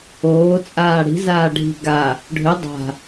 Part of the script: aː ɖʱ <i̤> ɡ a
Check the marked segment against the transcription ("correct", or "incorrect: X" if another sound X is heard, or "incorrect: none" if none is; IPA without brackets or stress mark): correct